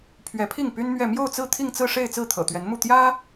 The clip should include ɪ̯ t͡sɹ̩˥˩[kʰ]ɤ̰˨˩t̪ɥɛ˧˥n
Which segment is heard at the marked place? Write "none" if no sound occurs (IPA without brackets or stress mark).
t̪ʰ